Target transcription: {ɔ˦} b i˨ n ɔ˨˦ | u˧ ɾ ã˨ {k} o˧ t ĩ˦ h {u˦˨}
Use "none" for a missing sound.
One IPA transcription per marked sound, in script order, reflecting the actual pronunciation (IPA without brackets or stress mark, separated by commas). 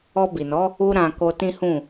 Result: ɔ˧, k, ũ˦˨